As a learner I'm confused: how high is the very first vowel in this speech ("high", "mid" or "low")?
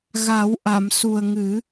low